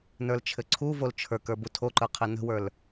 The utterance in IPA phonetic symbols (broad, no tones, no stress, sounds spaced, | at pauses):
n ə˞ l t͡ʃʰ ɘ ǀʰ u v o l t͡ʃʰ ə˞ k ə˞ b u tʰ o ǃ ə˞ qʰ ɘ n ə̤ w ə˞ l